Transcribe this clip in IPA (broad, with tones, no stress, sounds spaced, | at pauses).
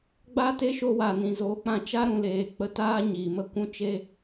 ɡ͡b a˦ t e˦ ʃ o˧ w a˨ n ĩ˨ z oː˨˦ k͡p ã˧ t͡ʃ a˦ ɾ ũ˨ l eː˨ k͡p ə˧ t aː˦ ɲ i˨ m ə˦ kʷ ũ˦ t͡ʃ e˦